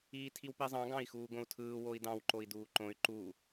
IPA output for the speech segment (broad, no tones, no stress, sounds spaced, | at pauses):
iː tʰ i w p i zˤ ɑ̃ ɡ ɑ̃ i̯ x uː ɡ õ u̯ tʰ ɯː w o i̯ d ɑ̃ w ǃ o i̯ d uː ǃ õ y̯ ǃ u